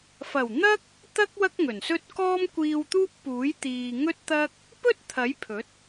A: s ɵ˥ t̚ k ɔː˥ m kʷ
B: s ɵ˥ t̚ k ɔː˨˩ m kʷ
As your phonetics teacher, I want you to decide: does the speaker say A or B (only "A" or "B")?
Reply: A